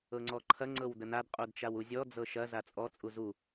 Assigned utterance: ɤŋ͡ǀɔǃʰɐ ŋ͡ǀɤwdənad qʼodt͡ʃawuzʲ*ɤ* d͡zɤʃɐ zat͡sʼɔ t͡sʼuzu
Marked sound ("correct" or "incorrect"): incorrect